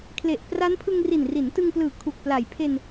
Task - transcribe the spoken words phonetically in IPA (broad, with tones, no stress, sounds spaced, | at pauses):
kʰ l e˨˩ ʔ p r a˦˥ n pʰ ɯ˧ ŋ r i˨˩ n r i˩˦ n t ɯ˧ ŋ p l ɯː˨˩ kʰ u˨˩ k̚ p l a˨˩ j pʰ e˧ n